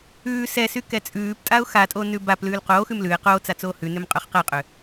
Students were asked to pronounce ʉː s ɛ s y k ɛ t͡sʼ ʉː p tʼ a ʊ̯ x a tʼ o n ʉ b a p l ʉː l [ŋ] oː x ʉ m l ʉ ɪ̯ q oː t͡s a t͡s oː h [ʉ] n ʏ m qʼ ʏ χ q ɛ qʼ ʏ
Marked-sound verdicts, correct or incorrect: incorrect, correct

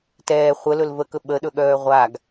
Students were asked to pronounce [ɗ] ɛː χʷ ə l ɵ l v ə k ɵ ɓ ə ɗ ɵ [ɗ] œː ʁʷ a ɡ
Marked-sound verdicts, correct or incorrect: incorrect, incorrect

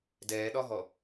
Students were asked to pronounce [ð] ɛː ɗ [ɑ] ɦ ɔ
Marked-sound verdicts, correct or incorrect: incorrect, incorrect

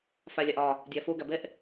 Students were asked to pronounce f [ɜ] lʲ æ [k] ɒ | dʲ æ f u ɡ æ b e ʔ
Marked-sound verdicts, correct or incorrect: incorrect, incorrect

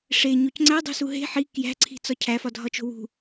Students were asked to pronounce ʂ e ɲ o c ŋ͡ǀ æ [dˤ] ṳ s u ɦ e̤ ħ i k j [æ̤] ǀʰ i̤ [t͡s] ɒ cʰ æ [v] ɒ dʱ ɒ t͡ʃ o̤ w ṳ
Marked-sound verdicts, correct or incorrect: correct, correct, correct, incorrect

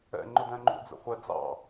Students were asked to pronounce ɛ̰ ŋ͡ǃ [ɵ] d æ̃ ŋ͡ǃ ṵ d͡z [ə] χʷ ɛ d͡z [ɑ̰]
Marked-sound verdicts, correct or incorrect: incorrect, incorrect, correct

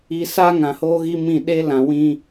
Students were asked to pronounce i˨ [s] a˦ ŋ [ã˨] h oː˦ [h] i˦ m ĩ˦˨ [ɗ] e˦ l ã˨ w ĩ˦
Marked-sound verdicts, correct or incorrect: correct, correct, incorrect, correct

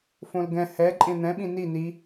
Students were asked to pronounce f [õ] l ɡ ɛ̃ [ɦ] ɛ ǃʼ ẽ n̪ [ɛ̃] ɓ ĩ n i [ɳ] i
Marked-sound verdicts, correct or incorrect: correct, incorrect, correct, incorrect

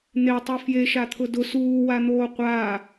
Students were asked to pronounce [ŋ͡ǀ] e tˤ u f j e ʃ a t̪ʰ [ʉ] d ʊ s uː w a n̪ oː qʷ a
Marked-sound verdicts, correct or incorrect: incorrect, incorrect

